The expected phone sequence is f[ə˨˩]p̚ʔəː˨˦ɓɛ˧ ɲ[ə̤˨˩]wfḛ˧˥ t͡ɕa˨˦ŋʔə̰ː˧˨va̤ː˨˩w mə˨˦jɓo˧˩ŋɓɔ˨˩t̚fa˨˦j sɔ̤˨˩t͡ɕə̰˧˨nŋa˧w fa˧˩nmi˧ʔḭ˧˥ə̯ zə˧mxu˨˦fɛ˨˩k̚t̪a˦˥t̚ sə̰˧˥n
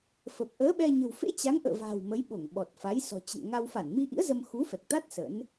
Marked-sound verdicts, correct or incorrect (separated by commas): correct, correct